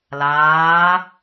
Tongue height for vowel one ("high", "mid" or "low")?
low